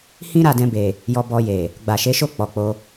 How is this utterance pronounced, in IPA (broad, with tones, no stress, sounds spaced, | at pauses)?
h ĩ˦ ɾ a˦˨ d ɛ̃˧ b e˨ | j ɔ˧ b ɔ˧ j e˨ | ɡ͡b a˨ ʃ e˨˦ ʃ o˦˨ k͡p ɔ˨ k͡p o˧